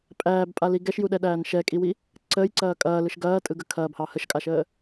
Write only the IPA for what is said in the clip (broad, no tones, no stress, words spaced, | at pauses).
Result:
pʼæːbpʼali ɡɛʃjuɗɛɗæːn ʃɛkʼiwi | ǀəːjǀɐː kʼɐːlɯʃ ɡɐːtʼɯɡə kʰɐːbhɑ həʃkʼaʃəː